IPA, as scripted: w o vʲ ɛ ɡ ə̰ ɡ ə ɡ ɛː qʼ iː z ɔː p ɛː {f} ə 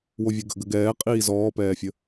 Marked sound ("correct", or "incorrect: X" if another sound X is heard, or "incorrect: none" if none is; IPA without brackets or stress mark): incorrect: fʲ